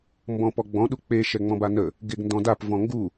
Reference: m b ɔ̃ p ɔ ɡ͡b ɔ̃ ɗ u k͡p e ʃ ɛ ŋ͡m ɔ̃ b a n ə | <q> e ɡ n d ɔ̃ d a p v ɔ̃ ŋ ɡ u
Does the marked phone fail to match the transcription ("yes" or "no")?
yes